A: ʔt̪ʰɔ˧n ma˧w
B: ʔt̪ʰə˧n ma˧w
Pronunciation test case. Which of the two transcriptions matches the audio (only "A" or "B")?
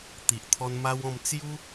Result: A